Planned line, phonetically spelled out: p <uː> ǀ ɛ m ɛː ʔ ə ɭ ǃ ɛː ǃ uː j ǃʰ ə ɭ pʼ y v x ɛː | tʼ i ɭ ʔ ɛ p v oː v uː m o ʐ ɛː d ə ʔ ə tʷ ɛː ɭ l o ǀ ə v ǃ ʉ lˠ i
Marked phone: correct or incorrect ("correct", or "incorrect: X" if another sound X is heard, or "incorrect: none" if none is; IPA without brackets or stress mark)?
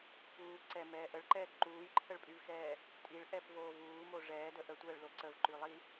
correct